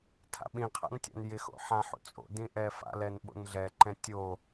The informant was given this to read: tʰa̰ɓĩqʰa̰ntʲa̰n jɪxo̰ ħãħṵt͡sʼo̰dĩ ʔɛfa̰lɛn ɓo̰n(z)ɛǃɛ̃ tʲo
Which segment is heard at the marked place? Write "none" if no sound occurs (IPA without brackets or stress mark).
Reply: ɮ